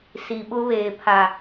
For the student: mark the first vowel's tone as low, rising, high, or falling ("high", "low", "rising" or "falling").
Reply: low